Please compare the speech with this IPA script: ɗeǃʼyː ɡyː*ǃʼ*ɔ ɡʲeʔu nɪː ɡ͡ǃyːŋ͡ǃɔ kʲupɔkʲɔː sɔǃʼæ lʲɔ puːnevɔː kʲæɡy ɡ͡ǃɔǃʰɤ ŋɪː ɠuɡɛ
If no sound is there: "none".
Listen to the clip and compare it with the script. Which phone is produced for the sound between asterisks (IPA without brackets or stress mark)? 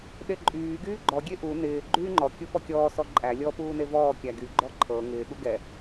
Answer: ɡ͡ǃ